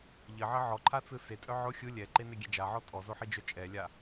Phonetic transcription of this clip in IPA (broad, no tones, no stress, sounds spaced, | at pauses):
ʎ ɘ ʕ ɘ ʕ ɔ ǃʰ a t͡s ɯ s e tʼ œ ʕ ʊ xʲ ɯ lʲ ɛ ǃ e n e ɡʲ ɛ d͡ʒ a ʕ ɔ tʼ ɔ z o ħ i d͡ʒ œ t͡ʃʼ ɛ lʲ a